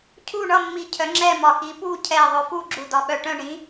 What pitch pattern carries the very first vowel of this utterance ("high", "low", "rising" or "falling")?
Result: falling